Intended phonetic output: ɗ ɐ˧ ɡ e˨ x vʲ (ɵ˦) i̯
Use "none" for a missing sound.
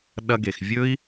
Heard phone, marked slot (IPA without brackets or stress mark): ɵ˦